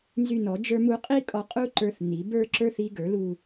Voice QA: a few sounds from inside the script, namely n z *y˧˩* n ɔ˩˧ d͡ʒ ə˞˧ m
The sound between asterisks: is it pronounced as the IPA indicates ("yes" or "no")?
yes